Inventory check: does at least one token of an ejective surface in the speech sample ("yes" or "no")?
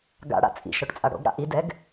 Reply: yes